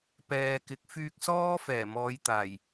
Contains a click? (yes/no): no